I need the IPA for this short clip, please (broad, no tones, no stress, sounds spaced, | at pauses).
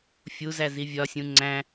fʲ u z æ z i vʲ ɒ sʲ ũ ŋ͡ǀ æ̃